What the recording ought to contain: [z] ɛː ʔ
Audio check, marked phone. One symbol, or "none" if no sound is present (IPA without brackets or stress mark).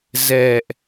z